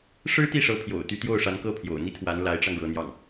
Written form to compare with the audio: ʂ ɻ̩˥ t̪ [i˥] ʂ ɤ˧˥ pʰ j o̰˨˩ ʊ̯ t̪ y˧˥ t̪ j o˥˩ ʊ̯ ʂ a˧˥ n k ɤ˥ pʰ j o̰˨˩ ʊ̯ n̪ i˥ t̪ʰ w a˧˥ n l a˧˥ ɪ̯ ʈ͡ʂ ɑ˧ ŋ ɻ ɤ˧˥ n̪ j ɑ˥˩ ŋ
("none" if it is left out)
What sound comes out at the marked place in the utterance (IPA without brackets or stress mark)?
i˥˩